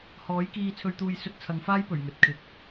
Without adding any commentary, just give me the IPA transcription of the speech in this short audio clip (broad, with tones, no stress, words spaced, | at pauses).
hɔː˨˥jkiː˧t͡sʰɵ˧ɥt̪uː˧j sɵ˧t̚t͡sʰɐ˨˧ŋfaː˥j pɵ˨˩ɥŋɵ˨t̚ kʰɪ˧k̚